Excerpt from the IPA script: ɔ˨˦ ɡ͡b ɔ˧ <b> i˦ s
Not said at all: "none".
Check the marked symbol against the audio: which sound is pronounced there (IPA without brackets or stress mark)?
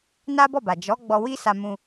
w